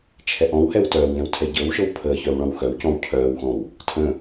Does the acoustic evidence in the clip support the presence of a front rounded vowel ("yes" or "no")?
yes